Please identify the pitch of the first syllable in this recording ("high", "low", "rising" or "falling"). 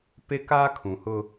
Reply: high